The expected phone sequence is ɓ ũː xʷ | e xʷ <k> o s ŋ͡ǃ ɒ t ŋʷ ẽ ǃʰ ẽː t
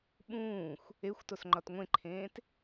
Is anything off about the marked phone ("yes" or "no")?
yes